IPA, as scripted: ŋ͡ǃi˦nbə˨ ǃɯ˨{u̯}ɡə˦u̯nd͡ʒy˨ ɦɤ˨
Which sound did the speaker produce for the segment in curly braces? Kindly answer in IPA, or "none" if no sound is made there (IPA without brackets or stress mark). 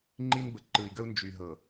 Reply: i̯